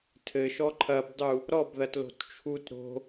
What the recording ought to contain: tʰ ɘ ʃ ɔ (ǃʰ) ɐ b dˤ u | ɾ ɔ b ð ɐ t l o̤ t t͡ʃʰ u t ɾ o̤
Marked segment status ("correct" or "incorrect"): correct